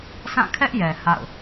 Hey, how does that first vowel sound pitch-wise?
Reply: falling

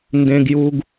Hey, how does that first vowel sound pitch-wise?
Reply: low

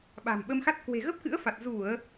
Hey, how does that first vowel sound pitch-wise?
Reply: low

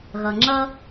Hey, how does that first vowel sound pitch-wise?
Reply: low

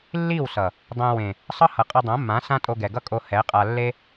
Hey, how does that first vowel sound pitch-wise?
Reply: falling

